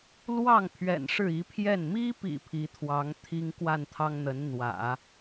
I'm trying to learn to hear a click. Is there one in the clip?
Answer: no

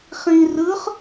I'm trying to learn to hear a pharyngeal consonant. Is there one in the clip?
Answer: no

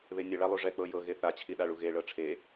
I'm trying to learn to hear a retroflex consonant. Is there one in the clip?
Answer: yes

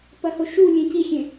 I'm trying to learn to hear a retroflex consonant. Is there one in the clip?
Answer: no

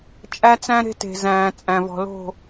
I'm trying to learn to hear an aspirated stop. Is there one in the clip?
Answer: no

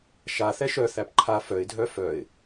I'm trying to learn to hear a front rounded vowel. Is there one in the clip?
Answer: yes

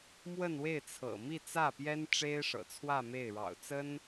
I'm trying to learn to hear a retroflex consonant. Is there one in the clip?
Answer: yes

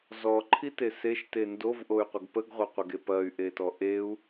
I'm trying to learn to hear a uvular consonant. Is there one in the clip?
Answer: yes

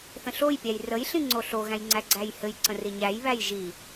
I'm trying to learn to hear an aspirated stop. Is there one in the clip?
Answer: no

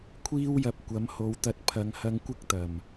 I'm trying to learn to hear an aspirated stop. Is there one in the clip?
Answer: yes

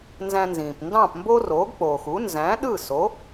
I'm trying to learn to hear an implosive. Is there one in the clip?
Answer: yes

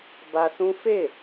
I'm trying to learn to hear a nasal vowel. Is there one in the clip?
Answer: yes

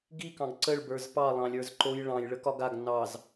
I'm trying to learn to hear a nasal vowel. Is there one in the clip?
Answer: yes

